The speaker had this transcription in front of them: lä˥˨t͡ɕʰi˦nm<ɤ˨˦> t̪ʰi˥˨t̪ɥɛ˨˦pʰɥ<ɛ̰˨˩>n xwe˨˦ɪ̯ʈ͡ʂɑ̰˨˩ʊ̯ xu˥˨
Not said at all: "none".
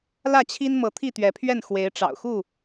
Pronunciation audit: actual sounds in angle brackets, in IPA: ɤ˨˦, ɛ˥˨

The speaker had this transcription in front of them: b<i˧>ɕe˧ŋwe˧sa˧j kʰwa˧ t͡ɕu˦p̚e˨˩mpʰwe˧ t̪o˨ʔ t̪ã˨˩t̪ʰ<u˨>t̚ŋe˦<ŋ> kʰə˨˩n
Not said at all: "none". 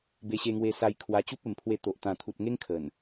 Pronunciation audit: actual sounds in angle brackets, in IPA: e˧, u˨, ŋ

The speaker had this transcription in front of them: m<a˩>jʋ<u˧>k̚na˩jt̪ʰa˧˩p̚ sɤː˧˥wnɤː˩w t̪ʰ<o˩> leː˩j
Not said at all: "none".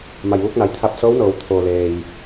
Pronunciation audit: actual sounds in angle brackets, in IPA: a˩, u˧, oː˩

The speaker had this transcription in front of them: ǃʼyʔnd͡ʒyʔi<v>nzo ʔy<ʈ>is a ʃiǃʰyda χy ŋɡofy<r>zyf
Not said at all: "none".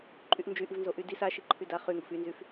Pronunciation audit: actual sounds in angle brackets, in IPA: v, d, n

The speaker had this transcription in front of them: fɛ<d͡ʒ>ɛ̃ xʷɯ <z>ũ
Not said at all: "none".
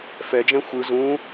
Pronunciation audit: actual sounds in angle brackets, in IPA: d͡ʒ, z

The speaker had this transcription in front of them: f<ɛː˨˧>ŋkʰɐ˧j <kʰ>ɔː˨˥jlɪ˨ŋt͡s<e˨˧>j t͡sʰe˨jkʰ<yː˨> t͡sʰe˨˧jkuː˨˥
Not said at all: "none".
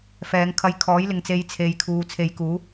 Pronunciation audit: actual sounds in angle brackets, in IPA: ɛː˨˧, kʰ, e˨˧, uː˨

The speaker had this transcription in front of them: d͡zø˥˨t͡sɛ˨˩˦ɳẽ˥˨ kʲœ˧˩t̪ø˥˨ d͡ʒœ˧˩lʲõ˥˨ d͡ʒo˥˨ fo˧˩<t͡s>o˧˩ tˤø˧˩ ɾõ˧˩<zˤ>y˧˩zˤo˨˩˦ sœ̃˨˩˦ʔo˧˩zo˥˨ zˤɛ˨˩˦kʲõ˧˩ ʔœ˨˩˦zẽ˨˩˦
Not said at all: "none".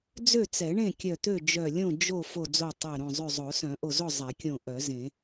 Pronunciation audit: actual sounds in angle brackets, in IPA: d͡z, zˤ

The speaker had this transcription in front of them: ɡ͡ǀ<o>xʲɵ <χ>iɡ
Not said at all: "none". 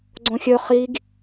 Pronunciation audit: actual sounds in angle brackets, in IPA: õ, χ

